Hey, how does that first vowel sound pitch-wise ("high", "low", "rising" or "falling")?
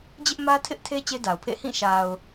high